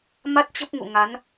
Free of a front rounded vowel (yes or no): yes